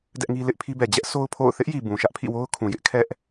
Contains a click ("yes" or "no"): no